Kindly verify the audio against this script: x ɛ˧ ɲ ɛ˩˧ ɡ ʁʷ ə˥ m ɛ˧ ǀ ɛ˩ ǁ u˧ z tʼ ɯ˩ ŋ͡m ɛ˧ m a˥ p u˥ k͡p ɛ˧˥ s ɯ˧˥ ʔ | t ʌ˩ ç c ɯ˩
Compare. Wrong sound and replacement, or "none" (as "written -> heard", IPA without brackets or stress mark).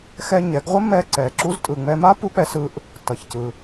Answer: none